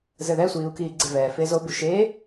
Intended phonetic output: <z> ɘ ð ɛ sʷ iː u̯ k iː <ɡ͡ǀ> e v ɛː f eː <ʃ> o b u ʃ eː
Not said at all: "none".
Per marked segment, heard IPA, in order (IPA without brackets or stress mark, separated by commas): z, ɡ͡ǀ, z